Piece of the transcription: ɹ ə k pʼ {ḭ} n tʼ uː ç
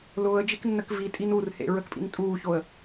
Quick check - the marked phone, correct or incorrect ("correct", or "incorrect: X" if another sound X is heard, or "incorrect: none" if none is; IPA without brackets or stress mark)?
correct